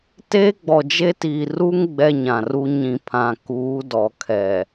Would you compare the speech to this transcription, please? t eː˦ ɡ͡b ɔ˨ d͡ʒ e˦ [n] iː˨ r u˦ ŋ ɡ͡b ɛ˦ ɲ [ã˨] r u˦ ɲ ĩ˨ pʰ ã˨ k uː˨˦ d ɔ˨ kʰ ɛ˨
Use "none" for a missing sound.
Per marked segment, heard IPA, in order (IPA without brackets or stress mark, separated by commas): t, ã˨